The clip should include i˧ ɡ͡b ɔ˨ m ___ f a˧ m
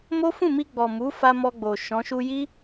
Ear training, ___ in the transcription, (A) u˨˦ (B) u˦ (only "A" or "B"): A